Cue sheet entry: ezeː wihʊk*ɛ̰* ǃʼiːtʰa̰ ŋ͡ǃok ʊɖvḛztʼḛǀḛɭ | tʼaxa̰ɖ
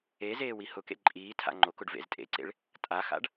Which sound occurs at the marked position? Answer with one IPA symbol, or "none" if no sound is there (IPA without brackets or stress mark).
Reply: ḛ